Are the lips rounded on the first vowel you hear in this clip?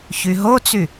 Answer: yes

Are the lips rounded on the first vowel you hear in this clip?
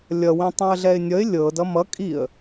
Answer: no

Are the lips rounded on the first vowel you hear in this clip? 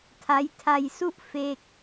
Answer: no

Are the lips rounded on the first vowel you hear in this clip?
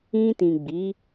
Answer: no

